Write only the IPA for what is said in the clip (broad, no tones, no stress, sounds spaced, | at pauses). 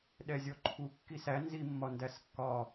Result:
ɗ ɛ zʲ ɔ ǃʰ u kː i s æ n z i mː ɒ n d æ s kː ɒ